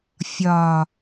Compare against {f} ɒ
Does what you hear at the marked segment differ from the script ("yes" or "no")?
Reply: yes